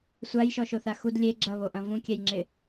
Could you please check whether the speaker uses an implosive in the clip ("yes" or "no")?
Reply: no